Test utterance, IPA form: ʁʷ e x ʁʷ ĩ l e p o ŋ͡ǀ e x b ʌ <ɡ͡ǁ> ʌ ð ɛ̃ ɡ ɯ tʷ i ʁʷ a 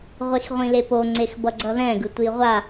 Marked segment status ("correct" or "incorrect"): incorrect